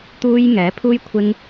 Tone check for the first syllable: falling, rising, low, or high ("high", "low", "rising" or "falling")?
high